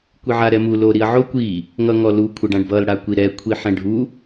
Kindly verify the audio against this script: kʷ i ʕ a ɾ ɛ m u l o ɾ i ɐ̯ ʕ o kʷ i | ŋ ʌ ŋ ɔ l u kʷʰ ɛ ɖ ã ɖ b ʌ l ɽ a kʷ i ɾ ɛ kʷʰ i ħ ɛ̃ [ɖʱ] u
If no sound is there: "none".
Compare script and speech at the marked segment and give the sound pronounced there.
ɖʱ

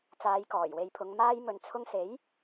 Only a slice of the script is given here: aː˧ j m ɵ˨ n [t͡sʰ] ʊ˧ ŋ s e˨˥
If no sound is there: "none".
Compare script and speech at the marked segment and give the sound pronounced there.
t͡sʰ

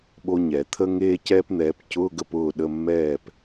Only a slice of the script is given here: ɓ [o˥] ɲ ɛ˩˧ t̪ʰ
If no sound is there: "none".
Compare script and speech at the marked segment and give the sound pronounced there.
o˥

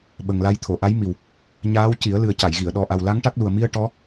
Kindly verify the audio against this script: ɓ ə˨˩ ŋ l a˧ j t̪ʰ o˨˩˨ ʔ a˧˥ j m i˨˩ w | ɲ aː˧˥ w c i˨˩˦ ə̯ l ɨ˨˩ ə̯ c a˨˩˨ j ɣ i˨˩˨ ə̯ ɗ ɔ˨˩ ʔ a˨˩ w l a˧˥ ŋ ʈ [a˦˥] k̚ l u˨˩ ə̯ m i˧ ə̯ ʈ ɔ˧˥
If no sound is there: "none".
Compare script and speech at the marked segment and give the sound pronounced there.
a˦˥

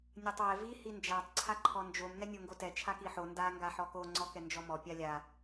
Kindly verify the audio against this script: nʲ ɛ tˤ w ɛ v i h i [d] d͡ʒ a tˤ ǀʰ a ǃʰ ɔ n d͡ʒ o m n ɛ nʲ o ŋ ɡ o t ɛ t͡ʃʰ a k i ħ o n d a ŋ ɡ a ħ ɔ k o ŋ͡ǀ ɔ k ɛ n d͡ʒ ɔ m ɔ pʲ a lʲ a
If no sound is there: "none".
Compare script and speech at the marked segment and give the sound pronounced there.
n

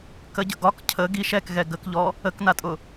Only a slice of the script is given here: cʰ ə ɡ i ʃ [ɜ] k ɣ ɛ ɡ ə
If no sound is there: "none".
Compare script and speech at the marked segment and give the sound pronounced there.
ɛ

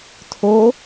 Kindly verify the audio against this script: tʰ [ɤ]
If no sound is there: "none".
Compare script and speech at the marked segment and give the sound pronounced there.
o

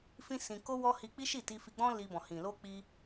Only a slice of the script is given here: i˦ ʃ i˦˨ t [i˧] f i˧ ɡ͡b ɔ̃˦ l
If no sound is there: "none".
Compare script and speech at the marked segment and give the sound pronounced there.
i˧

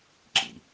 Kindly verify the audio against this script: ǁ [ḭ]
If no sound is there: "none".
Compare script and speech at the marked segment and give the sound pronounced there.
ḭ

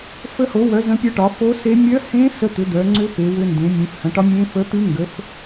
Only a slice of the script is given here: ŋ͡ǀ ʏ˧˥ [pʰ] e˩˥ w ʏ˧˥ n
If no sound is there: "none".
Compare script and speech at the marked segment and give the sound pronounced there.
p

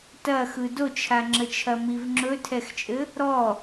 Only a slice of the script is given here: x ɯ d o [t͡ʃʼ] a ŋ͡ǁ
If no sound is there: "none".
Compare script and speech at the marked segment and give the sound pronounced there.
t͡ʃʰ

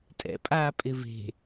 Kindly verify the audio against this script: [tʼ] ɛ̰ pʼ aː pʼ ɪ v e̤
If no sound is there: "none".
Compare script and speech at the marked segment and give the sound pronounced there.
tʼ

